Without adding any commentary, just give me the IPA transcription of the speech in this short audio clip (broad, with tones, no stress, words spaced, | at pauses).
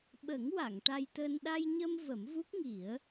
ɓə˨˩˦ŋ wa˨˩˨ŋ ʈa˧jt̪əː˧n ɗa˧jɲə˧m və˨˩˦mvu˦˥k̚ŋi˨˩˦ə̯